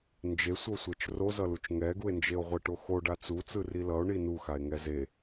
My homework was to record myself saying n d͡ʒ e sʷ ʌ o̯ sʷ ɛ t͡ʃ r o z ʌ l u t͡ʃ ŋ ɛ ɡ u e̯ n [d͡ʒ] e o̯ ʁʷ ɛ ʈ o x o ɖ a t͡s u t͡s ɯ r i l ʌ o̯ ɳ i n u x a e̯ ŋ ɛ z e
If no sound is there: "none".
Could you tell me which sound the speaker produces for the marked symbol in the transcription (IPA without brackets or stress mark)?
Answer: d͡ʒ